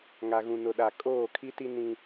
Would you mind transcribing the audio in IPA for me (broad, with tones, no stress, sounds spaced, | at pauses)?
ŋ a˨ ɣ ũ˨ n ʊ˨ ɗ a˨ kʼ oː˦˨ kʰ i˦ t i˦ n ĩ˦